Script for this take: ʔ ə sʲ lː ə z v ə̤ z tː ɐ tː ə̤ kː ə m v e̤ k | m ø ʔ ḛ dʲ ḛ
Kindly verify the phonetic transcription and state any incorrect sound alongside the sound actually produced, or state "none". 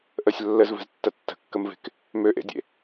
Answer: none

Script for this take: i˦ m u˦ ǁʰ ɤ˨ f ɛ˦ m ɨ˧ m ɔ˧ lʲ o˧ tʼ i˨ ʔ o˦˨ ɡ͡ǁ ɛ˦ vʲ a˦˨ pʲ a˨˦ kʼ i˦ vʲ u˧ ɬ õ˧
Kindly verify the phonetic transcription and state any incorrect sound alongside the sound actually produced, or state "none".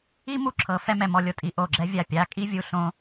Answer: ɨ˧ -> ɛ˧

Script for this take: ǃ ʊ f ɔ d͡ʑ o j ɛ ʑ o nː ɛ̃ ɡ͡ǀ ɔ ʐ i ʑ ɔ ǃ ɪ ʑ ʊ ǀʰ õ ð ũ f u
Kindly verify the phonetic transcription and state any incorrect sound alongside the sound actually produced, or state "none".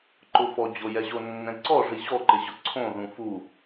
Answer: ɡ͡ǀ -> ǀ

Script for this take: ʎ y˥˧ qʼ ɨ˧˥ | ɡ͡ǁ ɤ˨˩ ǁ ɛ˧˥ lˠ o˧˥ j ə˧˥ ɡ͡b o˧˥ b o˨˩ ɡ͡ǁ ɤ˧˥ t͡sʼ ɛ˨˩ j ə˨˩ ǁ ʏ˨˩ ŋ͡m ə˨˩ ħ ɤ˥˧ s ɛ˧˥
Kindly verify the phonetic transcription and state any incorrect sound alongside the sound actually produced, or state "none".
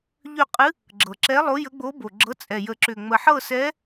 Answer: y˥˧ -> ʏ˥˧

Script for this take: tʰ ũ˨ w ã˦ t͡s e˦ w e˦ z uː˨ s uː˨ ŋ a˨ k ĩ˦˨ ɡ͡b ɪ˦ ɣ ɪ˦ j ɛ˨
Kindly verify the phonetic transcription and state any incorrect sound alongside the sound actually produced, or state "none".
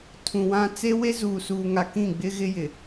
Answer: ɛ˨ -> ɪ˨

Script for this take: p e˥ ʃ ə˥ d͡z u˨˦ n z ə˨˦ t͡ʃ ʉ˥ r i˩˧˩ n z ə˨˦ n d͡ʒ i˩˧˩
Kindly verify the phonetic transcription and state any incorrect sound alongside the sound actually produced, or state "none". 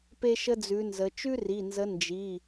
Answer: u˨˦ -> ʉ˨˦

